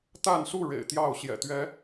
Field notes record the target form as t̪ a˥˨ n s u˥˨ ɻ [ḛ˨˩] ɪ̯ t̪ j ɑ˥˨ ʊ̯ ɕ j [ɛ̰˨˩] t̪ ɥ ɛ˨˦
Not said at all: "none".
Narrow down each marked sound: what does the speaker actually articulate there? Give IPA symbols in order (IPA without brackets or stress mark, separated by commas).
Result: ḛ˨˩, ɛ̰˨˩